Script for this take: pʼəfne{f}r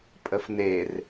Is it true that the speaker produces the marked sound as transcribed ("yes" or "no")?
no